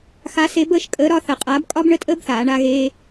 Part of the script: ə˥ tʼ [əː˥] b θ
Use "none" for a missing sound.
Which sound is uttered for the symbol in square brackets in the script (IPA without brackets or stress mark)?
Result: əː˥